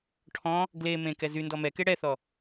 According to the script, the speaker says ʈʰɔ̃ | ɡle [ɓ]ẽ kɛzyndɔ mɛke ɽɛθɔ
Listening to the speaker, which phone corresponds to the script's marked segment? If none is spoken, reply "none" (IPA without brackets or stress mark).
m